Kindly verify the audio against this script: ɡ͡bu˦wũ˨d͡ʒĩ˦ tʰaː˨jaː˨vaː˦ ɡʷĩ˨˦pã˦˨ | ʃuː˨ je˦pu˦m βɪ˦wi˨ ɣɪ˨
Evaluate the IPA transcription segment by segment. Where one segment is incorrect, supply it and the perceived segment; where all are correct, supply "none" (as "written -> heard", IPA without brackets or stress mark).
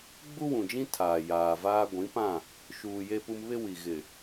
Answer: none